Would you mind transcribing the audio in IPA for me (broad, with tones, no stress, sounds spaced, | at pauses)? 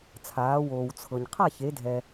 t͡sʰ aː˩˧ w oː˩ w t͡sʰ ɤ˩ ɲ qʰ a˥˨ ç e˩˧ dʱ ɛ˩